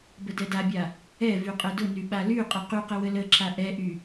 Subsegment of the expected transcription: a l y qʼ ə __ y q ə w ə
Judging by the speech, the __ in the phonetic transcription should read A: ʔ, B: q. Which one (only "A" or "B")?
B